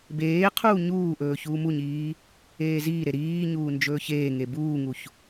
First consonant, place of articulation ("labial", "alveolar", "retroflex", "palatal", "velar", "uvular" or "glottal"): labial